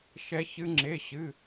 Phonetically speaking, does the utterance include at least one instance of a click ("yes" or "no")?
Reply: yes